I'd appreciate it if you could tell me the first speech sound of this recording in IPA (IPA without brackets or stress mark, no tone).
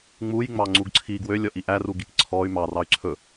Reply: ŋ͡m